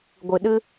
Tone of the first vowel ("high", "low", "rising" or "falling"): low